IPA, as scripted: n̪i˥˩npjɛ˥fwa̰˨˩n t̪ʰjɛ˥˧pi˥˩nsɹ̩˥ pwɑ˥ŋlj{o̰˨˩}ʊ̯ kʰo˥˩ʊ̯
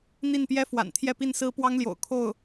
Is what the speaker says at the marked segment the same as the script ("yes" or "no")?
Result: yes